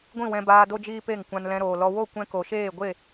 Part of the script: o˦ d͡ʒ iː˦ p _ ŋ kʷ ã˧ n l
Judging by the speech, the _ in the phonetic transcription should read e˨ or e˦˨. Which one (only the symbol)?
e˦˨